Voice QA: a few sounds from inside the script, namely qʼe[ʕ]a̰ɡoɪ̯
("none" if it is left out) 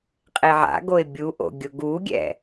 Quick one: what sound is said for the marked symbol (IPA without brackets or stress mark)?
ʕ